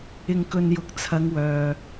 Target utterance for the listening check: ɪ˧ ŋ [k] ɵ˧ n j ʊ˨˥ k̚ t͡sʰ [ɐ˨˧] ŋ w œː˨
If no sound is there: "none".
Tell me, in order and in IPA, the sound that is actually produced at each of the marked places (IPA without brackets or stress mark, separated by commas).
k, ɐ˨˧